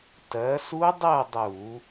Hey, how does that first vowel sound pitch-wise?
rising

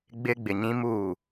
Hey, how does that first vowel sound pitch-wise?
low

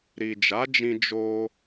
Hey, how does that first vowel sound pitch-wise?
low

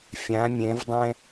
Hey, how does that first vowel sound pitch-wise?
rising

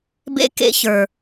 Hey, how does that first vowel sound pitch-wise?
high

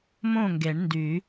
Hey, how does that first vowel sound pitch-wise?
falling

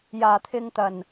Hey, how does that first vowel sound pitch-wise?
low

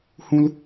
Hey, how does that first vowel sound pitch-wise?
high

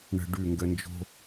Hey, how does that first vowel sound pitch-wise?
low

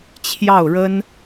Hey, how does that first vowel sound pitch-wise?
falling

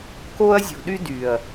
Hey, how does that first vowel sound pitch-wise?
high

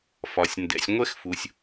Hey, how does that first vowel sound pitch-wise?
low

